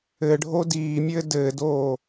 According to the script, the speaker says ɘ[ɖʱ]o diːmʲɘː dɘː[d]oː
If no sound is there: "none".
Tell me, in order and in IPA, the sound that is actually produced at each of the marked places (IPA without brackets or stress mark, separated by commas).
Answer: ɖʱ, d